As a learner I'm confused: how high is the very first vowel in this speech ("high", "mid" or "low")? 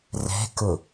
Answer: mid